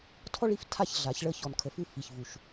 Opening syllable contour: high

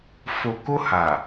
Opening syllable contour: low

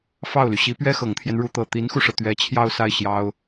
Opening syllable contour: falling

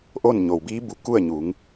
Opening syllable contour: falling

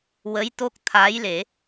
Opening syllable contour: rising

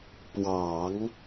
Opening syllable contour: low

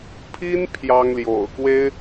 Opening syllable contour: high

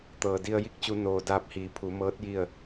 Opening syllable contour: low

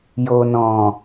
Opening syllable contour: low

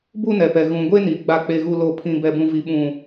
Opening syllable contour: high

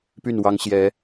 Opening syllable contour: falling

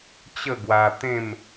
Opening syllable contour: falling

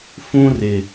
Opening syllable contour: high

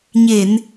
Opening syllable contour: low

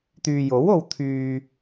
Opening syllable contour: low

